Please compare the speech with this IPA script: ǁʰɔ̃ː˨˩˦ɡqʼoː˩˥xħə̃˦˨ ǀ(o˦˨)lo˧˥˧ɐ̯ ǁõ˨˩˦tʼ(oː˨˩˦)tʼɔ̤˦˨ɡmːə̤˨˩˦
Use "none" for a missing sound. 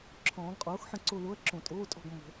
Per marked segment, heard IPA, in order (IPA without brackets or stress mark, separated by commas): o˦˨, oː˧˥˧